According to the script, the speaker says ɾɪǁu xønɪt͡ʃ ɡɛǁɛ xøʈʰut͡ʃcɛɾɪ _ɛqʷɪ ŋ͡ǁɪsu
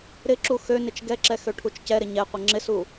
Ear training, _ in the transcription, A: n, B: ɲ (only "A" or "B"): B